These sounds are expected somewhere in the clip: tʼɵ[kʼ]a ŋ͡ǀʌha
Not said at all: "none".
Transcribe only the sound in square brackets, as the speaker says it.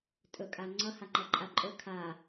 kʼ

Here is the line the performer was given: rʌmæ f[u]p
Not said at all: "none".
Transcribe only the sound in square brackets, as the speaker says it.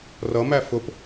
ʊ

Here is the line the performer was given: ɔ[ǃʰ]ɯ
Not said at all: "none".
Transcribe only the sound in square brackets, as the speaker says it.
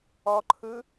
ǃʰ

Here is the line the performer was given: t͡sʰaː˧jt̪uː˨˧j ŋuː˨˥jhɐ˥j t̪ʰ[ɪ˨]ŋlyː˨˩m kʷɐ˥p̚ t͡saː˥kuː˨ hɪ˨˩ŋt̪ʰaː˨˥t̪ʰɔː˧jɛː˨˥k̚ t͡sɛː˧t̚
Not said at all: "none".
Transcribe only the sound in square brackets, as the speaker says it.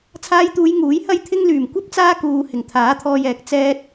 ɪ˥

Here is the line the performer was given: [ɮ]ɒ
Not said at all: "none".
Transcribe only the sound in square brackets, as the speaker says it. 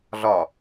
ɮ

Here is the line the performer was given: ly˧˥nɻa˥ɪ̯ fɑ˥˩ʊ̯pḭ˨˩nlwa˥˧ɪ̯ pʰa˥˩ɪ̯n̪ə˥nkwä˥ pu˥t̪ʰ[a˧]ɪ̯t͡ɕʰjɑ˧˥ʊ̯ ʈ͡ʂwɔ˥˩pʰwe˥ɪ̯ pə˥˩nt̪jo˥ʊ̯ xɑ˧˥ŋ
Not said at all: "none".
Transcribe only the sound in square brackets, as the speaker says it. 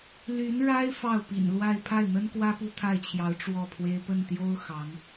a˥˩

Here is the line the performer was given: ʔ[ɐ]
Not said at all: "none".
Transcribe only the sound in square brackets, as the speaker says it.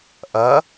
ɐ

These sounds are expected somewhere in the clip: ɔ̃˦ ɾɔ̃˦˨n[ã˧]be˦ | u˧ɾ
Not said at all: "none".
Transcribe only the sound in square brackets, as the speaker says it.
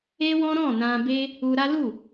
ã˧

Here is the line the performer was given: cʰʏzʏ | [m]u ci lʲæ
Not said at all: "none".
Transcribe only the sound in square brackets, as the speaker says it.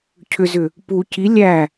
p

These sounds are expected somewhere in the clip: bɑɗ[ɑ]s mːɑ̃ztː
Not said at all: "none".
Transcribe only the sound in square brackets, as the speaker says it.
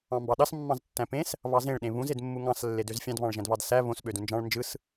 ɑ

